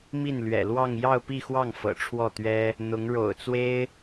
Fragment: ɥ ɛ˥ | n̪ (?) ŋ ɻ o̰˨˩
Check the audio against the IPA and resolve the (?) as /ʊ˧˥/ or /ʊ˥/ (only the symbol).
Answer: ʊ˧˥